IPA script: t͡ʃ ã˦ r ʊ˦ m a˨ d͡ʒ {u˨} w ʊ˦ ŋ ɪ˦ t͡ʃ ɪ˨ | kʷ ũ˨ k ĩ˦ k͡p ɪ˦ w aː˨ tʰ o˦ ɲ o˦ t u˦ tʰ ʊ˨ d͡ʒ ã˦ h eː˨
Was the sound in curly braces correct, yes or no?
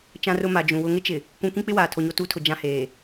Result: no